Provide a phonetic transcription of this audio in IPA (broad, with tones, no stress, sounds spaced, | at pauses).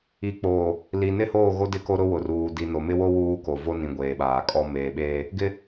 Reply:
i˨ k͡p oː˨ | l i˨ n ɪ˦ h oː˦˨ ɣ o˦ d ɪ˦ k o˦ ɾ ʊ˦ w ʊ˨ r uː˨ d i˨ n o˨ m ɪ˦ w o˦ w uː˦ k o˨ v o˦ n ĩ˨ ɡʷ eː˨ ɓ aː˨ kʼ ɔ˦ m eː˨ ɓ eː˦ | ɡ ɪ˦